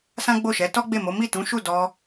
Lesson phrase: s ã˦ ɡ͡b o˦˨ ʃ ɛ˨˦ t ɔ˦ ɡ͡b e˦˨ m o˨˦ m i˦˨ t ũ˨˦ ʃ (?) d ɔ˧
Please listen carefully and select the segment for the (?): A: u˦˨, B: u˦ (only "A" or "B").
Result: A